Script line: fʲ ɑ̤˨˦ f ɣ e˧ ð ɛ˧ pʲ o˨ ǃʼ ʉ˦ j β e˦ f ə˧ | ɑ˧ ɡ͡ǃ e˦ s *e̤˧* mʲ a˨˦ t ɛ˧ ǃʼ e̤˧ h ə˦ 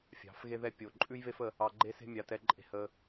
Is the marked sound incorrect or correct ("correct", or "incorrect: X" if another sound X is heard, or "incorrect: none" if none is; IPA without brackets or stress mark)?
incorrect: e̤˦